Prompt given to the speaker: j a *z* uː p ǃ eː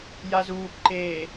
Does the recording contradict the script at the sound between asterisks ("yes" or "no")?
no